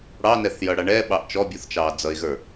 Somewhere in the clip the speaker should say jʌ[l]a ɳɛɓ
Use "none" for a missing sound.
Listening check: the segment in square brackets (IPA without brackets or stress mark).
ɽ